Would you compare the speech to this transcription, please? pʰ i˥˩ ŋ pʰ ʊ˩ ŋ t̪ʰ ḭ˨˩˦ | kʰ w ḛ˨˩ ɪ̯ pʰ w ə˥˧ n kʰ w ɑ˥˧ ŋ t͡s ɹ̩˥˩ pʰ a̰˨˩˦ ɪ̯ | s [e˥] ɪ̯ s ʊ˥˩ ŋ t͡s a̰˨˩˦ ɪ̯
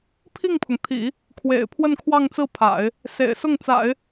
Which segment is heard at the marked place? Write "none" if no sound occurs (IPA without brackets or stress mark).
ḛ˨˩